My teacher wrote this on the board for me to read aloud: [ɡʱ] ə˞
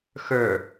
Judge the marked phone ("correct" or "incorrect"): incorrect